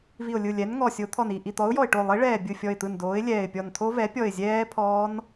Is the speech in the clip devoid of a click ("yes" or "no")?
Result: yes